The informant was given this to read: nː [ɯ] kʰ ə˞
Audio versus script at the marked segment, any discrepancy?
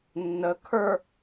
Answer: yes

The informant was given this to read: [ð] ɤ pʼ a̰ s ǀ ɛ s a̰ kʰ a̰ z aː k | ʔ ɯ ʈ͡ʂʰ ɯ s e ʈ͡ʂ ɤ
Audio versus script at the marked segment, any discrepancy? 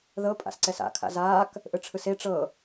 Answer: no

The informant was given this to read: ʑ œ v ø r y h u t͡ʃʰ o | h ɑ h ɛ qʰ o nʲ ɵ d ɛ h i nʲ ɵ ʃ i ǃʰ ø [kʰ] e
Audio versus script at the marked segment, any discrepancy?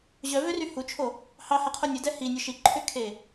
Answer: no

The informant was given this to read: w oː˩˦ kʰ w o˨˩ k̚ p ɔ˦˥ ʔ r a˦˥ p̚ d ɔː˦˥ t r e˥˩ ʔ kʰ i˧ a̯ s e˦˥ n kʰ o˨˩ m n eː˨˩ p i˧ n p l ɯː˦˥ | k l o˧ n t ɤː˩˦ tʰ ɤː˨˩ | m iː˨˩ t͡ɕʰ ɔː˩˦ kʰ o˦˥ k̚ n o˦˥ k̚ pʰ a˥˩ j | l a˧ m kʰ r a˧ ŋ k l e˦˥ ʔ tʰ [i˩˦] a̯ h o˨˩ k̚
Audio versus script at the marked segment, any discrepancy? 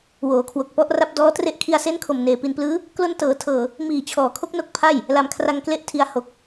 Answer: yes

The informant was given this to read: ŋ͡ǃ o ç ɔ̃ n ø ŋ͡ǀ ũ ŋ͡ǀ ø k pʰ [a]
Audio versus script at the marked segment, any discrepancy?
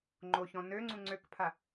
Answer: no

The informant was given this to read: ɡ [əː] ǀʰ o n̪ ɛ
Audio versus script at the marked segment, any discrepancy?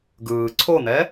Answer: yes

